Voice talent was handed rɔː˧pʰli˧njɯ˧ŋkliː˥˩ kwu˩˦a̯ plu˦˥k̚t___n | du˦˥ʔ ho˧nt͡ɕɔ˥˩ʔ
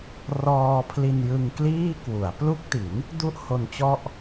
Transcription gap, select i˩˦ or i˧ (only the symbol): i˩˦